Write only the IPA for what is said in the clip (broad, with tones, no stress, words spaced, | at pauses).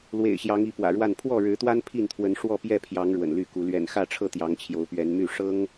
lwḛ˨˩ɪ̯ɕjɑ˨˦ŋi˨˦ pwä̰˨˩ɻwa˥˨n pʰwɔ˥˨ɻɻ̩˨˦t̪wa˦n pʰi˥˨nt̪ʰwə˨˦nʂwɔ˥˨ pjɛ˥˨pʰjɑ˨˦ŋ ɻwə̰˨˩nly˥˨ku˨˦ lɥɛ̰˨˩nxä˥˨ʈ͡ʂʰɤ˥˨ t̪jɑ˨˦ŋt͡ɕʰjo˨˦ʊ̯pɥɛ˨˦nmy˥˨ ʂɤ˦ŋ